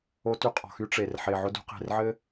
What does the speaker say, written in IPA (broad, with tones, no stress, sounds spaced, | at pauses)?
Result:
o˦ t y˦ qʼ ɔ̤˨ x y˦ ʈ͡ʂ e˨ r ħ e˨ ʕ ʊ˦ d ṳ˦ q e̤˨ r ʕ ɘ˦